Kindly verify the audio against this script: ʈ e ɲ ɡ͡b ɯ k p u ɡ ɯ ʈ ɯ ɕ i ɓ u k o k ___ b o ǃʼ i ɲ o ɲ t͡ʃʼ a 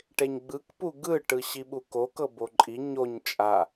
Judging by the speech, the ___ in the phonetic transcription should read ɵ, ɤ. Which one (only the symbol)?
ɤ